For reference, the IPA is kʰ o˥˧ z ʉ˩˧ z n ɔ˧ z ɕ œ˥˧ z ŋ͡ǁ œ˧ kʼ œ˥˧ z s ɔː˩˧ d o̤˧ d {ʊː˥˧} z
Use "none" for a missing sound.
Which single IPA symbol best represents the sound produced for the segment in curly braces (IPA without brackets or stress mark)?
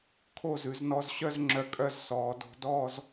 ɔː˥˧